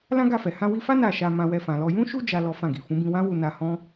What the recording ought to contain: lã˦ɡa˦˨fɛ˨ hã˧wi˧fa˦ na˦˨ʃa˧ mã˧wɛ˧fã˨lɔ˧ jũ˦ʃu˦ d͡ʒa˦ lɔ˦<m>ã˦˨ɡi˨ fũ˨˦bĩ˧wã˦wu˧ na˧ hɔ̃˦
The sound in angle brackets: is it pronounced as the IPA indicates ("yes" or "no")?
no